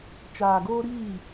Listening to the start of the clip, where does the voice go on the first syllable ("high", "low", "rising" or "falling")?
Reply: low